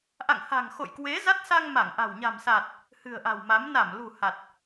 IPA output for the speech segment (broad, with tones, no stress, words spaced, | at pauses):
ʔa̰˧˨ŋha̤˨˩ŋ xo̰˧˨j kwe˨˦za˦˥t̚sa˧ŋ ma˧˩ŋʔa̤˨˩w ɲa̤˨˩msa˨˩t̚ | hɨ̤˨˩ə̯ʔa̤˨˩wma˨˦m na˧˩mlṳ˨˩ ha˨˩t̚